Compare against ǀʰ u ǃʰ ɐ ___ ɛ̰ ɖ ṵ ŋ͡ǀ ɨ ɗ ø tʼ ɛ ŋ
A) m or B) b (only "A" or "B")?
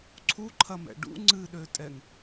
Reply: A